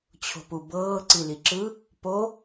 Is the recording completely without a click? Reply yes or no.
no